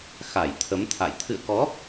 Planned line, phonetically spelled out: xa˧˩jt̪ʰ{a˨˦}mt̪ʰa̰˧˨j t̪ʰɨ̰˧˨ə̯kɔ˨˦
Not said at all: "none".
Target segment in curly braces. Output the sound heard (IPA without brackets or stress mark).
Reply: ə˨˦